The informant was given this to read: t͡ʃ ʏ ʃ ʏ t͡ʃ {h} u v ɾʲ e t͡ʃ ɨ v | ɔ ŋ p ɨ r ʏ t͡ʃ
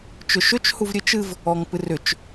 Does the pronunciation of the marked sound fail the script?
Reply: no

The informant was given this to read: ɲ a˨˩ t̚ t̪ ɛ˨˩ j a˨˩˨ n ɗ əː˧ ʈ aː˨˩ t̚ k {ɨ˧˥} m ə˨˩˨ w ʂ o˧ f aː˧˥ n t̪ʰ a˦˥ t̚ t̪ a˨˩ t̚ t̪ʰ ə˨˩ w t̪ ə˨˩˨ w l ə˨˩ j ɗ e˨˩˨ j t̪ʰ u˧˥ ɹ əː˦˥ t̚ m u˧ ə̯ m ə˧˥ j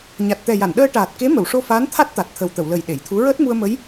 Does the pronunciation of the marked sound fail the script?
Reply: yes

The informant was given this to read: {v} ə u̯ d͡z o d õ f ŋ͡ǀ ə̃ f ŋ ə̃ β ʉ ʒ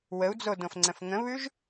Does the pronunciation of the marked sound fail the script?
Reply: yes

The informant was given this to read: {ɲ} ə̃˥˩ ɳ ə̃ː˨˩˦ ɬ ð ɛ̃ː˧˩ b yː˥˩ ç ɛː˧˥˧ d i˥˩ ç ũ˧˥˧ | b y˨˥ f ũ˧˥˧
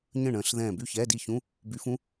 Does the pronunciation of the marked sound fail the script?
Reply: no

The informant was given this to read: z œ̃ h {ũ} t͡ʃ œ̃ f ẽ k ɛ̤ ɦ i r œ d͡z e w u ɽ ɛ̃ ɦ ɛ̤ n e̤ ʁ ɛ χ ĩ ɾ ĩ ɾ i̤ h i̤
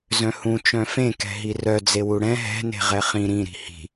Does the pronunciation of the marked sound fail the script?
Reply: no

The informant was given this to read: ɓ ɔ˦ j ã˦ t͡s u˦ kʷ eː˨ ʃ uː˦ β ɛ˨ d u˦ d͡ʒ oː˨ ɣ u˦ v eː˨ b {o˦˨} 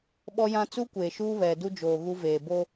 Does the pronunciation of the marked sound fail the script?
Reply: yes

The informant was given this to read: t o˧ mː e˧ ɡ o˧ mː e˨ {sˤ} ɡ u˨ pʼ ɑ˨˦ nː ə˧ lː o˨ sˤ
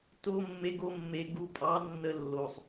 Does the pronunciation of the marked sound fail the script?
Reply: yes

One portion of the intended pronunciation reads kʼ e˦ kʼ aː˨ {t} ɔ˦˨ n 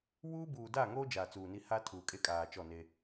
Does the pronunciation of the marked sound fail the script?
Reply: yes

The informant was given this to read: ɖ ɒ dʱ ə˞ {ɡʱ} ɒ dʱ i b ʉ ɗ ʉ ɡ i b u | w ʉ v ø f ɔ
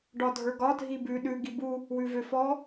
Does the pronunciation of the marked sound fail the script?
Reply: yes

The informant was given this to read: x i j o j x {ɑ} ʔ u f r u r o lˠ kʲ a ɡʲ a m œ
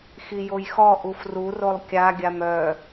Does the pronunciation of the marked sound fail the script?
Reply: yes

